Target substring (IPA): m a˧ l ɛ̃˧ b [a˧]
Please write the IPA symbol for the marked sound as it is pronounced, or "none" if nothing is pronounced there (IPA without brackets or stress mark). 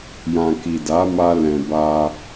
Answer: a˧